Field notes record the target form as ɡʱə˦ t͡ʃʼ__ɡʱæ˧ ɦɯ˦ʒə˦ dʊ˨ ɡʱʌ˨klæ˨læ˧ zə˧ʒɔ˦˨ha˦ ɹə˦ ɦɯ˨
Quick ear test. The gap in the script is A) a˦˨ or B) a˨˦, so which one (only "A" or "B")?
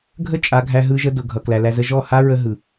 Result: B